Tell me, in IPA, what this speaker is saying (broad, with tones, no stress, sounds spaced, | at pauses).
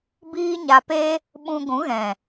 b iː˦ ɲ a˧ p e˦ | ɓ ũ˧ ɡʷ ũ˨˦ ɣ ɛ̃˨